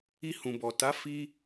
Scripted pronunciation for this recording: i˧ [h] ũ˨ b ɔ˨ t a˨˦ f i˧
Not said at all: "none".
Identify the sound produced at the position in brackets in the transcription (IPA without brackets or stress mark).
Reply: h